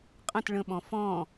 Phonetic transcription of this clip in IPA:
qʼ ə̃ t ɭ ə̃ ɓ ɔ̃ f ɔ̃

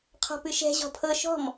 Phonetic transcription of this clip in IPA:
qʰ ɔ̤ p ɨ ʃ ɛ̤ ʑ ɔ̤ pʰ ɤ ʃ ɔ̤ m

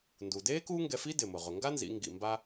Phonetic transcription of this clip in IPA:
n d u˩ d eː˥ k uː˥ ŋ ɡ ɛ˧ f i˥ d ɪ˩ m ʊ˩ ʁ ʊ˩ ŋ ɡ a˥ n z ḭ˩˧ ŋ ɡ ḭ˩ m b a˧

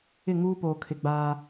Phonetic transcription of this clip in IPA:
ɪ˦˨ ŋ uː˦ p oː˨ kʰ ɪ˨ ɡ͡b aː˦

